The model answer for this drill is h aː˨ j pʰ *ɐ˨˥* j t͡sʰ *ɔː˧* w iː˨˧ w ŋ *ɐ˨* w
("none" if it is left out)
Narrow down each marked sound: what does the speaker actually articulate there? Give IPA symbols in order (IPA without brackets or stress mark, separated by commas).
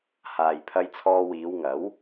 ɐ˧, ɔː˧, ɐ˨˥